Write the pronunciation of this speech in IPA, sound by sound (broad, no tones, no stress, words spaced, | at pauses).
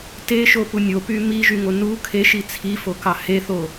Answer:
teʃopu nʲopy miʒyŋo nu kʰeʃi t͡sʰifokɑ heθo